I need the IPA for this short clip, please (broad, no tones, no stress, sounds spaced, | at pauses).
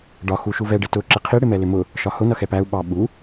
ɖ ɒ x u ʃ u v ɛ ɖ ɪ t ʊ ǁ ɪ qʰ i ɽ ɪ m ɛ l ɪ m ʊ | ʃ ɒ h ʊ n ʌ x ɛ p æ u̯ ɓ ɑ ɓ u